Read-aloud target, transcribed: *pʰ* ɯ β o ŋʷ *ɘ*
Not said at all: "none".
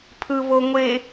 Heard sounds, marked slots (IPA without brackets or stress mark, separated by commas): pʰ, e